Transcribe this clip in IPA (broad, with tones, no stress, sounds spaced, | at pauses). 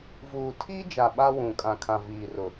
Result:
v uː˨ tʰ iː˦ d͡ʒ a˨ ɓ a˦ w ũ˨ kʼ ã˨ kʰ ã˨ v iː˨ r ʊ˨